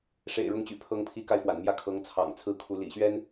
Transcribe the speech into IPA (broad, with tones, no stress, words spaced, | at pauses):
ʂḛ˨˩ɪ̯ɻʊ˧˥ŋt͡ɕy̰˨˩pʰɤ˧˥ŋ pʰi˧˥ka˧ɪ̯ fwa̰˨˩nmjä˥˩kʰɤ˧˥ŋ t͡sʰɑ̰˨˩ŋt͡sʰɹ̩˥˩ kʰu˧˥ lḭ˨˩ɕɥɛ˥n